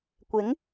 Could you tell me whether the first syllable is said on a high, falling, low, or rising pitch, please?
rising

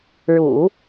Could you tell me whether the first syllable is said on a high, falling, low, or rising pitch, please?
low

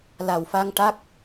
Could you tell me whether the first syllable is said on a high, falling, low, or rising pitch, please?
low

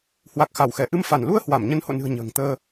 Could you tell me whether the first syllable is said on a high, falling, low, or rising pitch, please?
low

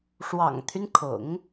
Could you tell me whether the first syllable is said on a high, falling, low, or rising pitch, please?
low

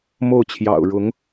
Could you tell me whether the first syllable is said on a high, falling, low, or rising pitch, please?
falling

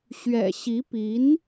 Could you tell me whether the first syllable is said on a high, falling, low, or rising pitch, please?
low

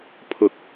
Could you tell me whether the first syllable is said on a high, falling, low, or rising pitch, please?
rising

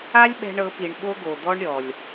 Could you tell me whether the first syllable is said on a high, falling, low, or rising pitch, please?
high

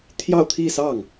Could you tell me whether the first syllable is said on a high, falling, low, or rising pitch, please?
falling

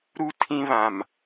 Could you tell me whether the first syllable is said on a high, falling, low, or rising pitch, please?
high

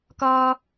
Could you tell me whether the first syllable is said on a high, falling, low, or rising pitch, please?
high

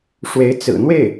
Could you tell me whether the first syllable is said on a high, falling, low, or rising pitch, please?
rising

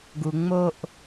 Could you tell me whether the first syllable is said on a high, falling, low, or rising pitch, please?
low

